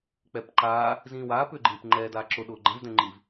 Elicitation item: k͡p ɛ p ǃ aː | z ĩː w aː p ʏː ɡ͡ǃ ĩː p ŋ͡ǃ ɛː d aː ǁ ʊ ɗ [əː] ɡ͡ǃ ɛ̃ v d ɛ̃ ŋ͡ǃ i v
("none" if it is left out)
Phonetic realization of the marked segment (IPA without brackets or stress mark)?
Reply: ʊː